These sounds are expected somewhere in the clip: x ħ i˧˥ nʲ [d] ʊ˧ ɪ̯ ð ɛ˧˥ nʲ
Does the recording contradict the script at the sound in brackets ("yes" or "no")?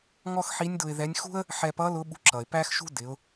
no